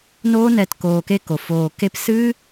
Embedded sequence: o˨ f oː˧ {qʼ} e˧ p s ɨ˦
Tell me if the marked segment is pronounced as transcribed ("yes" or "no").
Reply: no